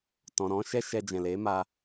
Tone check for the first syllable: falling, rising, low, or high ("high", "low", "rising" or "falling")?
low